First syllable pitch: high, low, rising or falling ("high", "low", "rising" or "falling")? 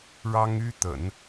high